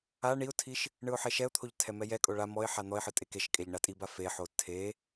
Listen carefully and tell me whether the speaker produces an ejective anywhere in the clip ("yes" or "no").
yes